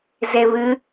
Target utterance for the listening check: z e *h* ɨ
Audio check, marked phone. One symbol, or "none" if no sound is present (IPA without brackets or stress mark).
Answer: β